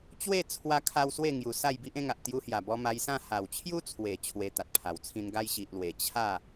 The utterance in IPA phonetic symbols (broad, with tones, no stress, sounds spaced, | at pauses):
t͡ɕ w e˥˧ t͡sʰ w a˧ kʰ a˧ w s w e˥˧ ŋ j u˨˩ s a˥˧ j b i˦ ʔ ẽ˧ ŋ a˨ ʔ t̪ j u˧ h j a˨˩ b ɔ˧ m a˧ j s ã˥˧ h a˨˩ w t͡ɕʰ j u˦ t͡sʰ w e˨˩ t͡ɕʰ w e˧ t̪ a˨ t̚ pʰ a˨˩ w t͡sʰ ĩ˧ n ɡ a˧ j ɕ i˨ ʔ l w e˨˩ t͡ɕʰ a˥˧